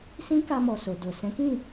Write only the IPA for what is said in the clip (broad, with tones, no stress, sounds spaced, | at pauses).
s ĩ˦ k a˧ m ɔ˨ s o˨ d o˨ s ɛ̃˨˦ k ĩ˦˨